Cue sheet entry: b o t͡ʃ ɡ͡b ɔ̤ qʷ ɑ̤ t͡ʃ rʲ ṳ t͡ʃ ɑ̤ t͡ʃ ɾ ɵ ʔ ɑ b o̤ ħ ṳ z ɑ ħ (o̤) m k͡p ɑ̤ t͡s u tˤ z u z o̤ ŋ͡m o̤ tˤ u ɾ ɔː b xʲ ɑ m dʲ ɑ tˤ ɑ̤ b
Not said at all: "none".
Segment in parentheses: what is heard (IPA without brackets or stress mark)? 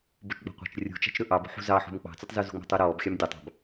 ṳ